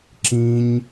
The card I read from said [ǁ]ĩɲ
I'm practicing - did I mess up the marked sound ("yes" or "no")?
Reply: no